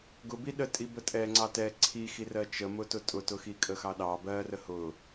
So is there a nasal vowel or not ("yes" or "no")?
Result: no